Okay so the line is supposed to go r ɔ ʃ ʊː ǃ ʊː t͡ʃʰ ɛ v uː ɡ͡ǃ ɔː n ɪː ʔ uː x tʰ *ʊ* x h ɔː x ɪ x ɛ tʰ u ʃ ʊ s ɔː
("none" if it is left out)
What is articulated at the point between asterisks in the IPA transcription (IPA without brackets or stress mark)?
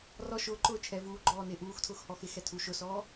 ʊː